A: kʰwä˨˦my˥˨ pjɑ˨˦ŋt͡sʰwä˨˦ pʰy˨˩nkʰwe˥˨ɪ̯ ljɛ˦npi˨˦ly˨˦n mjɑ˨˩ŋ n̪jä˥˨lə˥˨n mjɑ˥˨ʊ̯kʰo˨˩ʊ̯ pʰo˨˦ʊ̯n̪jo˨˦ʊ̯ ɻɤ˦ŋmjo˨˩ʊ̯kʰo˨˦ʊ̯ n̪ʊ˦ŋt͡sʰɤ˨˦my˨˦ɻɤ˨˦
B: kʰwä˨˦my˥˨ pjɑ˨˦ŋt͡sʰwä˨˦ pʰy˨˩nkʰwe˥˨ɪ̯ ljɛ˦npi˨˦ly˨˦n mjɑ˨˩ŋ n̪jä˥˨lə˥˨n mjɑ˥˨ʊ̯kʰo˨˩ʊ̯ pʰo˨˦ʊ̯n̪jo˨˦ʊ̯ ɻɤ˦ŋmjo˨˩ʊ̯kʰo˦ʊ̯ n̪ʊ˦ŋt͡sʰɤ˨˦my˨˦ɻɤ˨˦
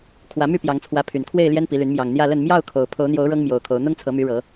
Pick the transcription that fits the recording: A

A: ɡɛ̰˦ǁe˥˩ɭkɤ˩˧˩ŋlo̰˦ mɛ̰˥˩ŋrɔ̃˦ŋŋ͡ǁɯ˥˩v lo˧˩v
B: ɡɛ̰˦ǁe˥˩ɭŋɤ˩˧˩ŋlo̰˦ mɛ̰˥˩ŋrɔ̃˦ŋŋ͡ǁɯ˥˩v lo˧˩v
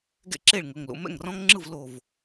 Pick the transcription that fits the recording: B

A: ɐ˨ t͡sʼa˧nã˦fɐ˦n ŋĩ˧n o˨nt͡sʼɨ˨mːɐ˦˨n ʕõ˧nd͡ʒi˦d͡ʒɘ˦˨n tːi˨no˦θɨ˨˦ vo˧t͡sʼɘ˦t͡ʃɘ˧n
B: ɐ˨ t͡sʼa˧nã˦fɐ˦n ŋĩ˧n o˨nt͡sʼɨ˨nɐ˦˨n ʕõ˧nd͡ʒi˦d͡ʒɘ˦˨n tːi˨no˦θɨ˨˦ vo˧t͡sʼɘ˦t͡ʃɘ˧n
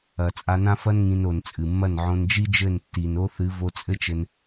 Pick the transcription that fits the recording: A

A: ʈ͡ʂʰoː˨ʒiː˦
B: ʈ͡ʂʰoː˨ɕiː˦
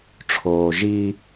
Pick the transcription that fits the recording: A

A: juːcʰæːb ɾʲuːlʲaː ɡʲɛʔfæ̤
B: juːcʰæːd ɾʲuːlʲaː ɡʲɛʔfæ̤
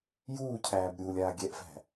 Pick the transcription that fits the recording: A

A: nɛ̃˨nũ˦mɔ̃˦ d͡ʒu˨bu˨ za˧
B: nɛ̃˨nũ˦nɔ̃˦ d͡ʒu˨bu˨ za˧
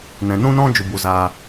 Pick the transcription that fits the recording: B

